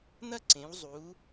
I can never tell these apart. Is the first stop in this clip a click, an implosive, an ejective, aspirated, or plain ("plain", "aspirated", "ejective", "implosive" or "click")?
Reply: click